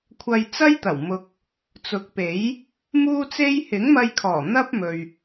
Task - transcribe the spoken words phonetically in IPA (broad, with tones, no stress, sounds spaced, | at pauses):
kʷʰ ɐ˧ j t͡s ɐ˥ j t̪ ɐ˨˩ w m ʊ˨ k̚ | t͡s ʊ˨˥ k̚ p e˨˥ j | m uː˥ t͡s e˥ j h ɪ˨˥ ŋ m ɐ˧ j kʰ ɔː˨˩ n̪ ɐ˥ p̚ m ɵ˨ ɥ